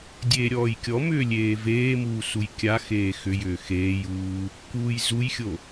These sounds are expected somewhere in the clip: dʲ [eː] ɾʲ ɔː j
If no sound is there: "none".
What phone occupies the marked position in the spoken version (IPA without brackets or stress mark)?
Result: eː